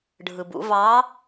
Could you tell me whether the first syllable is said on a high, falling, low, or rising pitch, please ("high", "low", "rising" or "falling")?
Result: low